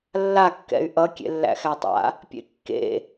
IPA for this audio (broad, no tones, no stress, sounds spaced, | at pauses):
lː a kː ɛ̰ y̯ ʔ ʌ kʲ ḛ lː æ̰ x æ tˤ a̰ | pʲ ḛ kː ḛ